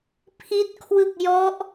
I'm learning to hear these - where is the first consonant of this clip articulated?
lips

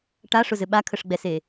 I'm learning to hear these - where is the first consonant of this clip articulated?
retroflex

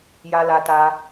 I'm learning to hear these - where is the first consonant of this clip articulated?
palate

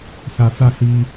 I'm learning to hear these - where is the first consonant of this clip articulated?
tongue tip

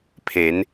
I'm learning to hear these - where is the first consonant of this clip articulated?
lips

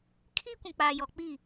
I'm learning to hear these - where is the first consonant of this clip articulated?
velum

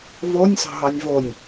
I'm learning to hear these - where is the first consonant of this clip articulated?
lips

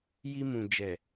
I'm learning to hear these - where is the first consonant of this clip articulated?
palate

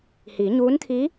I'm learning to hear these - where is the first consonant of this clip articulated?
throat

